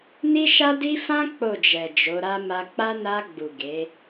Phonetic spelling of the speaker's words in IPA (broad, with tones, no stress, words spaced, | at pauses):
ni˦ʃa˦di˦ fã˦ k͡po˦˨d͡ʒɛ˨d͡ʒo˨˦ɾa˦ ma˧k͡pa˦ na˧ɡ͡bu˨ ɡe˨˦